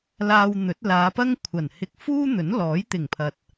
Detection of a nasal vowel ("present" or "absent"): absent